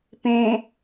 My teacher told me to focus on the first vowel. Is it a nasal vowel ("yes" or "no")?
yes